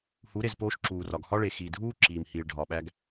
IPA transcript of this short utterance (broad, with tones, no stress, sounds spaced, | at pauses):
h u˨˦ ɾ e˨ z p oː˦ ʃ ǁ uː˨ r ɒ˨ ɡ h ɒ˦ ɭ e˨ x i˨ dʱ uː˦ ǁ iː˨ m h iː˨ ɭ ɖʱ ɒ˨ ɓ æ˦ ɡ